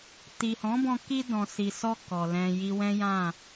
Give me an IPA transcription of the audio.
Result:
ti˨hɔ̃˨˦bɔ̃˧ ki˧ dɔ̃˨si˨sɔ˧ kɔ˨lɛ̃˧ji˦ wɛ̃˦jã˦˨

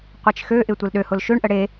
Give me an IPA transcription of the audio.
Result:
qʷet͡ʃxøʔɪ tʷelɗøhʊl ʃøɳʔə ɽe

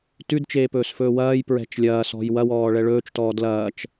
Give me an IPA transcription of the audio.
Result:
tʉdt͡ʃeːpɵːsfɵː wɐːjpɹɛ̤t͡ʃ lʲɐːsɔ̤j wɐwɔːɭɛ ɭɵːt͡ʃtɔː dlɐːt͡ʃ

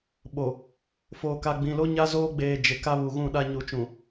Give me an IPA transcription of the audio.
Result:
ɓo˨ | foː˨ka˨ɡ͡bĩ˨lo˦ ɲa˦zoː˦ɡ͡beː˨ d͡ʒɪ˨ ka˦βu˨ɣũ˦˨ɗa˦ ɲu˨t͡ʃũ˨

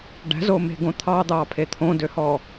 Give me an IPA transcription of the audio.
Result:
ɖæ̤zome̤ɡõ t̪ʰɑd̪ɑːpʰe t̪ʰõdøhɔ

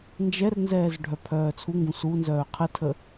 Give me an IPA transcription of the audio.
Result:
nd͡ʒɛrnzɛːz ɖʱœpʰœːt͡sʰuŋɡũ sunzœː qʰətʰə

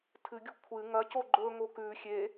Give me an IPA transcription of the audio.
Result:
tʰɨɡʲṳ kʷʰɨ ŋɐco ɡ͡ǃɵŋo kʉ xʲe

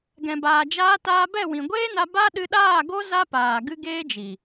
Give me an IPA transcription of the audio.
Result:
ɡɛ̃˨baː˨d͡ʒaː˧ taː˧bɛ˦˨wĩ˨ ɡʷeː˦na˧ ba˦ ɗɨ˧ɗaː˦˨ɡo˦ za˦paː˨ ɡɨ˦ɡeː˦d͡ʒi˨

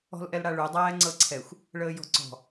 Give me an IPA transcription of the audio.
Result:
ɔ̤lʔɛlɽaɭʉ dˤæːŋ͡ǀɤǀʰɛxʷ | ɭəːjɔ̤ǀɔ̤

